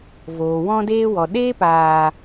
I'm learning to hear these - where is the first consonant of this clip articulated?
lips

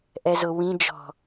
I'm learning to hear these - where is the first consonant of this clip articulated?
throat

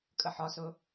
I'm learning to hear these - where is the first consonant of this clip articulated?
velum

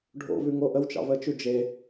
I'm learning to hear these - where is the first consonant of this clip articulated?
retroflex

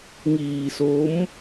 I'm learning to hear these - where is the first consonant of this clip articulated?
velum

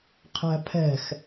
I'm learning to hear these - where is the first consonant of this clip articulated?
uvula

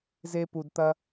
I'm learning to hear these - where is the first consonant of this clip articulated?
tongue tip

